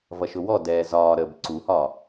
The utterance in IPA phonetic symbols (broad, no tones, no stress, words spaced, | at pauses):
vʌʃʊwɔdɛː zɒːɾəːb ǀuhɒ